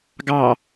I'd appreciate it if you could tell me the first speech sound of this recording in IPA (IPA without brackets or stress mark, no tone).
ɡ